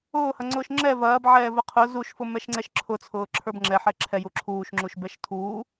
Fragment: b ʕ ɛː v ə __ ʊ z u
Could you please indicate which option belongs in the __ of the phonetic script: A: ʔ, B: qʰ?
B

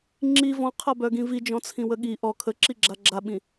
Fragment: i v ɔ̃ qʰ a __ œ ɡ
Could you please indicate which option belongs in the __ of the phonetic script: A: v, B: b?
B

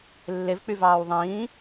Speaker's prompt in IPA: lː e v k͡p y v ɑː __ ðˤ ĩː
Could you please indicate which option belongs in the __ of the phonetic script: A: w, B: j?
A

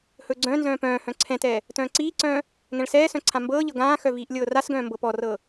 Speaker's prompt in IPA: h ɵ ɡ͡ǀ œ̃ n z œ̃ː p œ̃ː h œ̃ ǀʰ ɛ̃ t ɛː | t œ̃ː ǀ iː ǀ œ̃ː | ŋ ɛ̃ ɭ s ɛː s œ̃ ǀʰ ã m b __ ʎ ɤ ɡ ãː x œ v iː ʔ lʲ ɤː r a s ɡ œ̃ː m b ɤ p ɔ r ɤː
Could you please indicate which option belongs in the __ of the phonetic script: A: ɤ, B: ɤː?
B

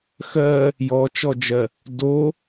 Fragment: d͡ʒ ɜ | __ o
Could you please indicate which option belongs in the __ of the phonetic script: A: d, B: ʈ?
A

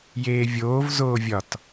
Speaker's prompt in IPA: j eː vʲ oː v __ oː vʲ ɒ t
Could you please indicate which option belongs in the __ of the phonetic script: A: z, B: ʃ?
A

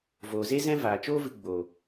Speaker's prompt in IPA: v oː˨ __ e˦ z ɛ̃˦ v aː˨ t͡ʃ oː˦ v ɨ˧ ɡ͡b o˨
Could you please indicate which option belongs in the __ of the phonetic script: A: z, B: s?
A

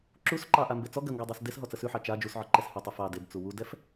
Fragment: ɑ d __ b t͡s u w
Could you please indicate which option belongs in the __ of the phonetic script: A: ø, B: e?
B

